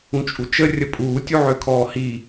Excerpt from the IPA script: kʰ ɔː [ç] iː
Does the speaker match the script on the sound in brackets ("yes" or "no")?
no